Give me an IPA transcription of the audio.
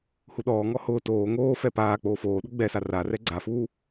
huɗɔːŋɔ hʊː toː ŋoː fɛpaːk͡poː foːɗʊ ɡ͡bɛsa rarɛ ɡ͡ǀafuː

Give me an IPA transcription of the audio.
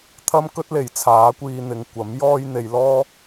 t̪ʰɐ˥mkɵ˥t̚le˨˩j t͡sʰaː˨˥kʷiː˧ n̪ɪ˨ŋkʷɐ˨˥mjɔː˥j n̪e˨jlɔː˥

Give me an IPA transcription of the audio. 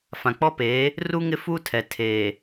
fã˨k͡pɔ˦peː˨˦ | ru˦ ŋɪ˦fuː˦tʰɛ˨ tʰeː˨

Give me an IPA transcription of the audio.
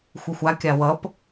xʷɯxʷa kʲawʌp

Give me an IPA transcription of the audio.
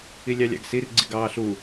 ilʲɑlʲɑ̰ɡsir ɡ͡ǀiɡɑːɬu

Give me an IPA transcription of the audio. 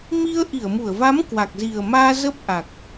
mi˧ə̯ ʔi˧˩ə̯mu˧˩ə̯va˨˦m kwa˨˩k̚zi˨˩ə̯maː˧ zə˦˥p̚ʔa˨˩k̚

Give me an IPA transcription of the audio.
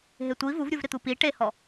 ɦetʷi vuvɾʲuv ɾɪt̪upi ʈehɔ

